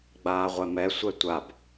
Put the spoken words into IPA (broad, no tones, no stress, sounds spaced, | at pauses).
ɡ͡b aː ʁʷ ɛ m ɛ sʷ ɛ tʷ a b